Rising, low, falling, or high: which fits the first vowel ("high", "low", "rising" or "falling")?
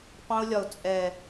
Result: high